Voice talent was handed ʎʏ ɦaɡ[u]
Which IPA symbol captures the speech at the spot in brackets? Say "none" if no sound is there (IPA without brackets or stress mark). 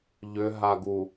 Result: u